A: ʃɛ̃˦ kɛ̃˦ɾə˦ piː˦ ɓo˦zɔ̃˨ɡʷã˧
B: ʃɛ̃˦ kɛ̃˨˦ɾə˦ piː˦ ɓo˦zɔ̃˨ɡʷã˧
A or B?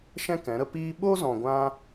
B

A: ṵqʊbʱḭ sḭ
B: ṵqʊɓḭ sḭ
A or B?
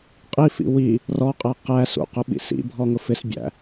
B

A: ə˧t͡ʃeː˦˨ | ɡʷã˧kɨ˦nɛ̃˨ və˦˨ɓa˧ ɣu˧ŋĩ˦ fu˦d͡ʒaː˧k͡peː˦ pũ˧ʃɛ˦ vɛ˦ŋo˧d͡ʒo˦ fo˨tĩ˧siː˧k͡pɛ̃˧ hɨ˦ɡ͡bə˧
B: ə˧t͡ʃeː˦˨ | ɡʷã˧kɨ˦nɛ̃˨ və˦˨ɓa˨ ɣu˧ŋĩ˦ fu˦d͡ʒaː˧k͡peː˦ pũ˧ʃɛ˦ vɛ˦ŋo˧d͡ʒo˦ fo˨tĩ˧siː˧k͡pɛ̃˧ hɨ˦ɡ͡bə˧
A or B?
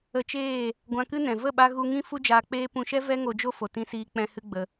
A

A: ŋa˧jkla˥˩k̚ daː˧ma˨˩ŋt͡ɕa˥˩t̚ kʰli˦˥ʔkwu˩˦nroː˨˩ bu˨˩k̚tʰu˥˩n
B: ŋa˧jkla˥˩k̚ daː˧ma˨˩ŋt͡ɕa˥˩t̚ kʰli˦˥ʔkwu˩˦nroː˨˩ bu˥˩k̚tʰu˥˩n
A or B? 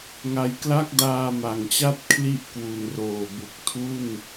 A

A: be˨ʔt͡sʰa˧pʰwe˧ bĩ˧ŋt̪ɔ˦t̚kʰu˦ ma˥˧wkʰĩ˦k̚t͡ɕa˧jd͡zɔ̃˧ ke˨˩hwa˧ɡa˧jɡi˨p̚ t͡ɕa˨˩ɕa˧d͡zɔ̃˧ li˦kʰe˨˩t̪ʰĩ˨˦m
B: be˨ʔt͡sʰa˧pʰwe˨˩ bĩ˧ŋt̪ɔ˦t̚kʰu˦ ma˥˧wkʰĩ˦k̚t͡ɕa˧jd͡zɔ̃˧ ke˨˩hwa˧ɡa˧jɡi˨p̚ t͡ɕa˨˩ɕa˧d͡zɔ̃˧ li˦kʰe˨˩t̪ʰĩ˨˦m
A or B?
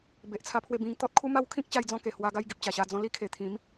A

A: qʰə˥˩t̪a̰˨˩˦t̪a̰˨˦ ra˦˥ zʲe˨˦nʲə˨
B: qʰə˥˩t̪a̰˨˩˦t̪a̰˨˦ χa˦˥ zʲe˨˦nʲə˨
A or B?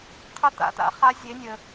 B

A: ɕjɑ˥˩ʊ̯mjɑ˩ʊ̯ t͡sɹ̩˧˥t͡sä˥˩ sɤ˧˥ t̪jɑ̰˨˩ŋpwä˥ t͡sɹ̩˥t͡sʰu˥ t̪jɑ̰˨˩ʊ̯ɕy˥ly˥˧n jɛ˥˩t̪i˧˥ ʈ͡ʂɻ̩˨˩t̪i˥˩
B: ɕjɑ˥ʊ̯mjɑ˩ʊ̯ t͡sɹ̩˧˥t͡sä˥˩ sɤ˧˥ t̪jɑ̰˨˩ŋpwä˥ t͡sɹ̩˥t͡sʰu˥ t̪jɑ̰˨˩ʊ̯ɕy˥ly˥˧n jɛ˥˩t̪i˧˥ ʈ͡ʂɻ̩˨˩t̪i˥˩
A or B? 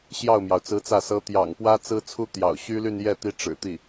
A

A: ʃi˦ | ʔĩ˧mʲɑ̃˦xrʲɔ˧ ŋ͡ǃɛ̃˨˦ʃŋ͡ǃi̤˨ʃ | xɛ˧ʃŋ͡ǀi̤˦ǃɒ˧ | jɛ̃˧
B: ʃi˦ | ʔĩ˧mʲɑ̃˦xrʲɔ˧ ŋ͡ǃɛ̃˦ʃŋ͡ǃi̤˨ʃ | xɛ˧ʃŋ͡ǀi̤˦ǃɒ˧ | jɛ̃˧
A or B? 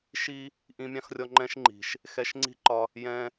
B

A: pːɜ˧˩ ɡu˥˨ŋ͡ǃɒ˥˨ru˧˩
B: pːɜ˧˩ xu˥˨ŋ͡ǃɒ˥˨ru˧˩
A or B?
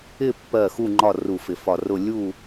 B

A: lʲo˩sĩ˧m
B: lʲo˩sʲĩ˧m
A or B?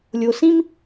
A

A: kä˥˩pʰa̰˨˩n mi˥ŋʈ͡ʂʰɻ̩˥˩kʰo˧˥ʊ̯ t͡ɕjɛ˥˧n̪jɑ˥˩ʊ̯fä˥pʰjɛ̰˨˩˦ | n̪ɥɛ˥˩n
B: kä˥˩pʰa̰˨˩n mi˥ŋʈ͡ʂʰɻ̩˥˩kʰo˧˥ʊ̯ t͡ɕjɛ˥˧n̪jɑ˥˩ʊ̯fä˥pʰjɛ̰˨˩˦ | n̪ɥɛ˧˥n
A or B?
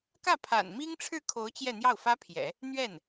A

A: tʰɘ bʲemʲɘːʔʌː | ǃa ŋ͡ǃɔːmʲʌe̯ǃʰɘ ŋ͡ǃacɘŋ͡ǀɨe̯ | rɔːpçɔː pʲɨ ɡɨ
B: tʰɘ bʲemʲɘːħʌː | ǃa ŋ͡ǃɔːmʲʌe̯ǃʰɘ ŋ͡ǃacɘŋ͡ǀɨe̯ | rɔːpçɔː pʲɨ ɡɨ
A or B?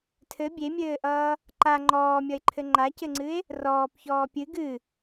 A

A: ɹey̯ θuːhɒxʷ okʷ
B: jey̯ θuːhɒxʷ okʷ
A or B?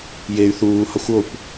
B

